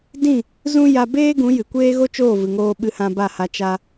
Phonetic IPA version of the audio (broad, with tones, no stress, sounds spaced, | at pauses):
d ĩ˦˨ | z ũ˦ j a˧ b eː˦ ɡ ũ˨˦ j ɨ˨ kʷ eː˦ ɣ o˦ t͡ʃ oː˦˨ v ɨ˨ ŋ oː˧ ɓ ɨ˧ h ã˧ b a˦˨ h a˧ t͡ʃ a˧